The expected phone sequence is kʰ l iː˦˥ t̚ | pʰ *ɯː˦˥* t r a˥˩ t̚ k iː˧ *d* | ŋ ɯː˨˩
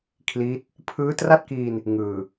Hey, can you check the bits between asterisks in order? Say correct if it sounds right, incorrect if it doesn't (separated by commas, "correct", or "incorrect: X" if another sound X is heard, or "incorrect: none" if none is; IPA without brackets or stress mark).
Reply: correct, incorrect: n